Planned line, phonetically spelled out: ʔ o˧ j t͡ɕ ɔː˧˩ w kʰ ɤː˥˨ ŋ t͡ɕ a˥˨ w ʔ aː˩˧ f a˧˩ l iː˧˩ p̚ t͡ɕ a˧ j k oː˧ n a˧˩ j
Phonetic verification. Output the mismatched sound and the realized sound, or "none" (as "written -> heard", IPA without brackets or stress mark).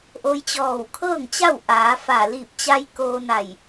none